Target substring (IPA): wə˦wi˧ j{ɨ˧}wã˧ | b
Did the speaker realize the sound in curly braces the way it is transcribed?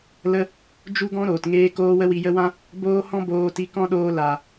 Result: no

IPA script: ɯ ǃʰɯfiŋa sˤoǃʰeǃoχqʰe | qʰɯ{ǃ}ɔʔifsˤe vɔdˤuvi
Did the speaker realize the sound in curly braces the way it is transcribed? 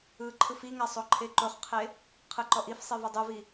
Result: yes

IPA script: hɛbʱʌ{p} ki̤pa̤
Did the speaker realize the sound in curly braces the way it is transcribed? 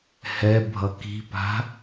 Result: no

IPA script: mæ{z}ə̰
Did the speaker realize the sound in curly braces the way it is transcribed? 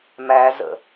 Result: yes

